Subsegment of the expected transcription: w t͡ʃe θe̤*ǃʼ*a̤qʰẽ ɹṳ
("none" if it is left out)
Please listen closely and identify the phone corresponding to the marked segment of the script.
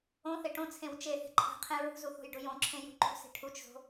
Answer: ǃʼ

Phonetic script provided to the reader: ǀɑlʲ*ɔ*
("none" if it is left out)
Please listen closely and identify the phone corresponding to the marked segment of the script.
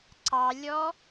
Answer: ɔ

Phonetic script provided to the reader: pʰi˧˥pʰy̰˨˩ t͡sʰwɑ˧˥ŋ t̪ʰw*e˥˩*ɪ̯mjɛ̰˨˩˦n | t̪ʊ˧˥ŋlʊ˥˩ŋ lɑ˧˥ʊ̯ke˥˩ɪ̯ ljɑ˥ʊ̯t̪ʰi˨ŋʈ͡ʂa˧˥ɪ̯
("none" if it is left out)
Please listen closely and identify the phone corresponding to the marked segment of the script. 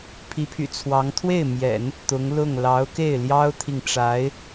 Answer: e˥˩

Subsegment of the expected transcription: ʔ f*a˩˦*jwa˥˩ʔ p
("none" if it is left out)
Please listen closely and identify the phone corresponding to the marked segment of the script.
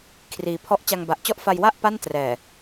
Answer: a˧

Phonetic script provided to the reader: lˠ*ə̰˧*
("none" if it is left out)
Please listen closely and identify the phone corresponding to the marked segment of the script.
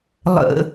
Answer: ə̰˧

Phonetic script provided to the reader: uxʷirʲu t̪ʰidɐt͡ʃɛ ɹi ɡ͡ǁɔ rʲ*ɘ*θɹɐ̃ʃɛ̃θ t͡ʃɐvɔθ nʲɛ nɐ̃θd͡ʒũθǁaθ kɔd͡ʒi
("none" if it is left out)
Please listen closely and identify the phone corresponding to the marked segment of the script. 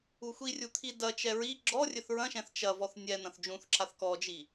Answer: ɘ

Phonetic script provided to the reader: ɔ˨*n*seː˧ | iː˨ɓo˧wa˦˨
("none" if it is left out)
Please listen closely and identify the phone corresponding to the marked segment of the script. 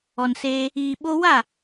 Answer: n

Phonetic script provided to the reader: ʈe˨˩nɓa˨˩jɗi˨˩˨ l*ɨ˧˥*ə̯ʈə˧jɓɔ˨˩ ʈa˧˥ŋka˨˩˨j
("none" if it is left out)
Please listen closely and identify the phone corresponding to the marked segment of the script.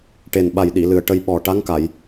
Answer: ɨ˨˩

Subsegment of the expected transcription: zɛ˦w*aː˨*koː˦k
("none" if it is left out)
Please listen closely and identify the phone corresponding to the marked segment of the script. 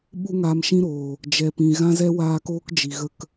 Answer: aː˧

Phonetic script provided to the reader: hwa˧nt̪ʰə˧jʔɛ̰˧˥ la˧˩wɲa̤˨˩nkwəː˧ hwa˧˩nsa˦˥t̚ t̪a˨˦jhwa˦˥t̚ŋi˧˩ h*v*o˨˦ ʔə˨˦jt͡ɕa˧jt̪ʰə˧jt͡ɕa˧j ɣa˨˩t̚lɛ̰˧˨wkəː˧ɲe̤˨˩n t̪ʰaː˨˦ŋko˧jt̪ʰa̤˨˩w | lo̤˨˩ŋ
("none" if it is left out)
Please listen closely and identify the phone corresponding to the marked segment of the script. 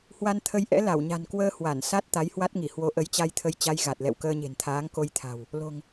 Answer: w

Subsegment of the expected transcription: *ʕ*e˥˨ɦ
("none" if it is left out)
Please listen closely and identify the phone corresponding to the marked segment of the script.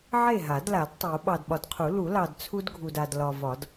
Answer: ʕ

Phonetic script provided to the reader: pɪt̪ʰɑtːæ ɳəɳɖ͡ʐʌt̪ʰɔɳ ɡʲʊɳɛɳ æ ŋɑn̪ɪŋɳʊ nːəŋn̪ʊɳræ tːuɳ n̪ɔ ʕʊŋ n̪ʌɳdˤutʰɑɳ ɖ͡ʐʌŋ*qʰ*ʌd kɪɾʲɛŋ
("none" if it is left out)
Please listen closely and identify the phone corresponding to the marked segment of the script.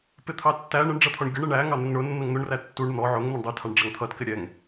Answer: t̪ʰ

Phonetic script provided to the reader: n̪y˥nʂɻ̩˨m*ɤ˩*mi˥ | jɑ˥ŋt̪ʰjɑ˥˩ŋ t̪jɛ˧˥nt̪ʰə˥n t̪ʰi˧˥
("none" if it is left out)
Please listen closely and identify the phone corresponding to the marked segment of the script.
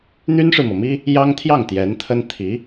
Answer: ɤ˩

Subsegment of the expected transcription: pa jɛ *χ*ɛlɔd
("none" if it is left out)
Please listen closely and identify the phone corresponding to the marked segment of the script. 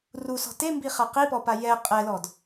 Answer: qʼ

